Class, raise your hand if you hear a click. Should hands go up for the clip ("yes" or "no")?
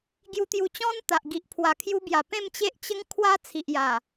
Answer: no